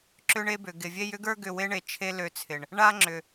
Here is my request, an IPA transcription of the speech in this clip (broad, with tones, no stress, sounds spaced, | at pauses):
ǁ ʏ˦ ɳ e˦ b ʏ˨ ɡ ɪ˨ vʲ e˦ j ʏ˦ ɡ ə˞˦ ɡ ʏ˦˨ w e˦ ɳ e˨ t͡ʃʰ e˧ l ø˧ t͡sʰ ɪ˨ ɳ | ɳ a˦ ŋ͡ǁ ʏ˨